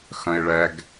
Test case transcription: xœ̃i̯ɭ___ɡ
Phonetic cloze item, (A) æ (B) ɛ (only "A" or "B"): B